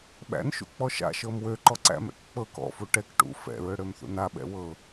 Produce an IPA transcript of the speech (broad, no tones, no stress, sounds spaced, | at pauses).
ɓ æ̰ n ʃ ṵ k͡p ɔ ʃ a̰ ʃ ɤ m w ø ǃ ɔ ǀ æ̰ m ɛ̰ k k͡p ɤ k ɔ̰ f u ʈ ɛ k ʈ ṵ f ɛ̰ ɹ ø ɽ ø m θ ṵ n a ɓ ɛ̰ w ɤ